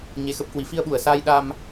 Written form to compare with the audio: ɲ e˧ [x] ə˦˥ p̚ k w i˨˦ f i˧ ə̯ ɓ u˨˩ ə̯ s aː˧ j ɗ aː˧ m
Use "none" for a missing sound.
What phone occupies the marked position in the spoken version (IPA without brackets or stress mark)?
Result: x